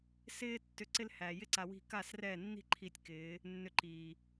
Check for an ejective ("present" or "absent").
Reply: absent